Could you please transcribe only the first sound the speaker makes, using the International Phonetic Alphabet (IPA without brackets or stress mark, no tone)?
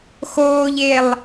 x